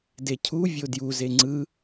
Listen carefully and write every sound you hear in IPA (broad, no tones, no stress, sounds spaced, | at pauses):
d e cʰ u vʲ o d j u z e ŋ͡ǀ ɯ